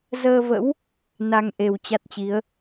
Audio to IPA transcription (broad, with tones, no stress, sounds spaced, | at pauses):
z əː˧ v ə̰˧˥ w | n a˧ ŋ ʔ e˨˩ w t͡ɕ a˦˥ t̚ t͡ɕ i˨˦ ə̯